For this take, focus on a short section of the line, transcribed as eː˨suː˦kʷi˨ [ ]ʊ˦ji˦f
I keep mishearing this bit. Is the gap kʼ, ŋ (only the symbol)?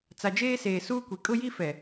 kʼ